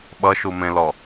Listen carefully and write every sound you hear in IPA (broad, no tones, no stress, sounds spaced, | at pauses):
ɓ ʌ ʃ u m ẽ l ɔ